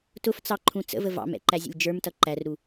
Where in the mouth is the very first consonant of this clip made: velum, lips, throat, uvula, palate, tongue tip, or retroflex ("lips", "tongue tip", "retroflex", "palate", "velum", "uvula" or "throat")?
tongue tip